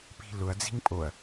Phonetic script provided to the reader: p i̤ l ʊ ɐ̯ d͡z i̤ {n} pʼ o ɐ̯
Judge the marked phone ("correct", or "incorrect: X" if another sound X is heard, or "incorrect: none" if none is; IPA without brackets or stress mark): incorrect: ŋ